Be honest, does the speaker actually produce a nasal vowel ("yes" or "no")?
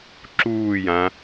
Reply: yes